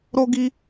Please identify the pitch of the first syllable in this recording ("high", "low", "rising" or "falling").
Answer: high